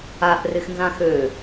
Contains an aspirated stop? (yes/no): no